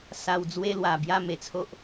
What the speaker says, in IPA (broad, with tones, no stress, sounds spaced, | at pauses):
s a˧ w d͡z w e˦ l w a˨˩ b j a˥˧ m e˨˩ t͡sʰ o˦ ʔ